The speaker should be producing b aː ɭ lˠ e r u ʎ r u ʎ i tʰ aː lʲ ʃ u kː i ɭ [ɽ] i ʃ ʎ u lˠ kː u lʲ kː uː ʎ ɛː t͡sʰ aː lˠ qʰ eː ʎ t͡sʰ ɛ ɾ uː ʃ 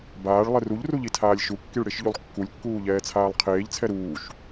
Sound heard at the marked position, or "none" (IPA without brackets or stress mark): ɽ